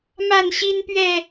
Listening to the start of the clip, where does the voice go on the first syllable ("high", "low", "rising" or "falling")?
falling